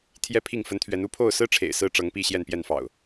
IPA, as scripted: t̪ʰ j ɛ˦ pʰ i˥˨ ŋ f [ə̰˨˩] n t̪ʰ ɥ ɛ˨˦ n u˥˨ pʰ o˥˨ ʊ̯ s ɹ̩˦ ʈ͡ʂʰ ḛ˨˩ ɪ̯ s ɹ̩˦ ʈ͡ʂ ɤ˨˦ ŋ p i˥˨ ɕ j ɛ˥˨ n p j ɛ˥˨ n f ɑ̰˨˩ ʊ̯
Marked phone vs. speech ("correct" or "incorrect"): incorrect